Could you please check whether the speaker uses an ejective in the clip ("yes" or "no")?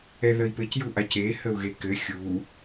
no